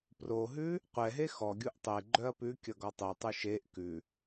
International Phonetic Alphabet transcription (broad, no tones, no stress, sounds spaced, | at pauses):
p r o ɦ ʉ | qʷ ɛ ɦ e x ɔ ɡʲ u ʔ tˤ e ɡ͡ǃ œ ɐ̯ p ʉ kʲ ʌ ɡ ɔ tˤ ʉ tˤ ʉ ʃ e ʔ k ʉ